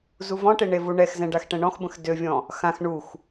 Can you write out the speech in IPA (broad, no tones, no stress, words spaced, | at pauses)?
zuvɔ̃ʈe ɳevuɳɛxzɛ̃ ɖaxʈɛ̃ɳɔ̃xbə̃x døvʲɔ̃ | xãx ɳux